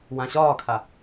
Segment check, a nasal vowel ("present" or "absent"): present